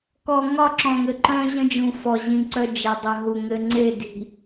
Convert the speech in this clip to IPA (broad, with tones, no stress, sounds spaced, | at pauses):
k ɔ˨ ŋ ɒ˦˨ ǁ ɔ̃˨ ŋ ɘ˨ ǃ œ̃˦ ʑ ə̃˦ d͡ʒ ũ˨ f ɔ˨ ʑ ĩ˨ ǀ œ˦ d͡ʒ ɛ˨ dˤ ə˨ ɦ u˨ ŋ ɘ˦ ŋ͡ǀ e˦˨ d i̤˨